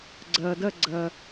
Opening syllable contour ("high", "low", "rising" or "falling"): low